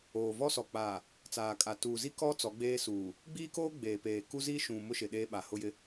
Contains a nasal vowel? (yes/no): yes